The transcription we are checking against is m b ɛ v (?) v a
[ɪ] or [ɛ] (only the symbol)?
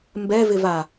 ɪ